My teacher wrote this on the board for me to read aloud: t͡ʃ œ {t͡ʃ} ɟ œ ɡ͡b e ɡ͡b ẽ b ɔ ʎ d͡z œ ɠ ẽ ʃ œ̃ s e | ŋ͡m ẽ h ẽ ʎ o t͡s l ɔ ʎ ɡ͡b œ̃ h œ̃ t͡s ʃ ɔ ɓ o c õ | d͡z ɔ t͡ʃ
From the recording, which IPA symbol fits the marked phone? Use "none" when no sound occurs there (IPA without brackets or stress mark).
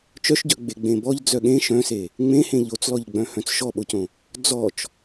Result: ʃ